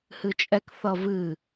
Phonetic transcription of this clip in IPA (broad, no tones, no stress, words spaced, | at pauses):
hɨt͡ʃʼɛkθʌ vɨ